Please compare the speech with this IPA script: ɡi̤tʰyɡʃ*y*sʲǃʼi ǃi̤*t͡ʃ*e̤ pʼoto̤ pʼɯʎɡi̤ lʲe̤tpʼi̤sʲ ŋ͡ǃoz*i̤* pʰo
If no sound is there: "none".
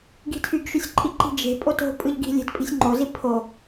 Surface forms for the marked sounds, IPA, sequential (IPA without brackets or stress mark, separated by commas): y, d͡ʒ, i